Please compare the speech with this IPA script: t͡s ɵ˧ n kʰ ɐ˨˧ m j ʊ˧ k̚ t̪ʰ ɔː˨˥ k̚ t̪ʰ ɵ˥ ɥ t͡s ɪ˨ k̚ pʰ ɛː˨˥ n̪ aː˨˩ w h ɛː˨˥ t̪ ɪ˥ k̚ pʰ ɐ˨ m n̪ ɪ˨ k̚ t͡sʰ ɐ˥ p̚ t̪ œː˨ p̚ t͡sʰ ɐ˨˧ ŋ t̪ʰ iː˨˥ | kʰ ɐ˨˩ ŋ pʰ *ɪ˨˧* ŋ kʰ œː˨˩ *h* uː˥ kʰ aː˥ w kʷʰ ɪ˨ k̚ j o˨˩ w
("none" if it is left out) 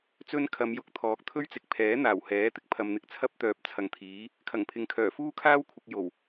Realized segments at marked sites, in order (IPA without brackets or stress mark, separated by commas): ɪ˨, f